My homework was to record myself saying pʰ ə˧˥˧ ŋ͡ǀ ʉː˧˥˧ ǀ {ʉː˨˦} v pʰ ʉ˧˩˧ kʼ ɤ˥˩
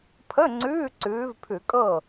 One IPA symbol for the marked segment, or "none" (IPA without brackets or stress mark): ʉː˨˦